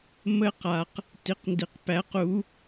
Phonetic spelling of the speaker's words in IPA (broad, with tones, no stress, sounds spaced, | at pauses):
m ə˧ q a˨ q | t i˨˦ q n d i˨ q p æ˨˦ q u˨˦